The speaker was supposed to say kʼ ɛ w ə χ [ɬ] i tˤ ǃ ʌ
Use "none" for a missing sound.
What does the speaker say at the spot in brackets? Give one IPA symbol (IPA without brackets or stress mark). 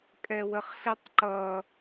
ɬ